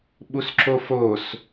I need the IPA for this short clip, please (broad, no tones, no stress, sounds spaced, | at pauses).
ɓ u s ǁ o f o s